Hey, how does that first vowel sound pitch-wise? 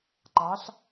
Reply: rising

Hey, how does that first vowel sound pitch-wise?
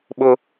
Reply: high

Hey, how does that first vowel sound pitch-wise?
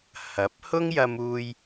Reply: rising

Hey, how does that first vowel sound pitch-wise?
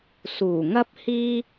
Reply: low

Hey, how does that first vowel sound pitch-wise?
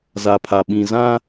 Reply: low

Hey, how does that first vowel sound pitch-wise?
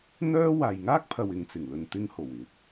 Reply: high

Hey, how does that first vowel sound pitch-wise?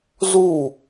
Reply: falling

